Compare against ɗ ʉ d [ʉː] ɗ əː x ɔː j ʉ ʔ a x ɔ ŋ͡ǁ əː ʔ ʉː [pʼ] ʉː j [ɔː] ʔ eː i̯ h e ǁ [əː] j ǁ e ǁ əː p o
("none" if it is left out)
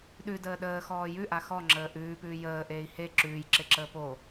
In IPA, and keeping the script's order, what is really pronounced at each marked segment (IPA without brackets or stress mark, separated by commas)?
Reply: əː, p, əː, ʉː